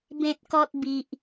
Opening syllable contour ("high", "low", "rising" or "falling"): high